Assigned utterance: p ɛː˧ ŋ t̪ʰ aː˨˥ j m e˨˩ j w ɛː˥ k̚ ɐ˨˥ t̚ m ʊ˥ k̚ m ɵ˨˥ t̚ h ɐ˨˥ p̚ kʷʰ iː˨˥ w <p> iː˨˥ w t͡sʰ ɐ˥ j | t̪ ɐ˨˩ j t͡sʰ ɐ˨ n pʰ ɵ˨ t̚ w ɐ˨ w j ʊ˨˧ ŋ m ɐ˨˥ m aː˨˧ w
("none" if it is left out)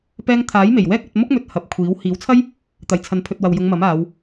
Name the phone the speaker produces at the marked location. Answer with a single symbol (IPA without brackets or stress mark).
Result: h